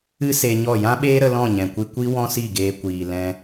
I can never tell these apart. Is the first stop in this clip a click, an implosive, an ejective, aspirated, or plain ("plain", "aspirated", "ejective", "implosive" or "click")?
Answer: implosive